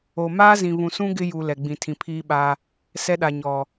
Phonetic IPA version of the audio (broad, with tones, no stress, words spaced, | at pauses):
o˨ maː˦zĩ˨βũ˨sũ˦ ɡɪ˦ju˨ lɛ˨ɡ͡bĩ˨ tʰĩ˨pʰiː˦ɓa˦ | sɛ˦ɗa˨ ɲɔ˨